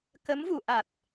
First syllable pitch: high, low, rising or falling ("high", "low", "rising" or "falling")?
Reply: rising